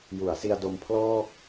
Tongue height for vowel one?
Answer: high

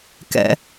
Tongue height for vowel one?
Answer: mid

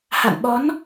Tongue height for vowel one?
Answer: low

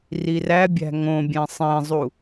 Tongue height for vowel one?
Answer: high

